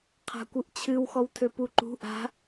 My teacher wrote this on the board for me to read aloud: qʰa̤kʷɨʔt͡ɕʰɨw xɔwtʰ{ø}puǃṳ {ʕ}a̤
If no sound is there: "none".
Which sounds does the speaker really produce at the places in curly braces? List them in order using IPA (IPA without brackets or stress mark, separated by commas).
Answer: ø, ʔ